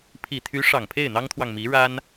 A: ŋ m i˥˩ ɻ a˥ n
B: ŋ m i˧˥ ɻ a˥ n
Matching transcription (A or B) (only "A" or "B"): B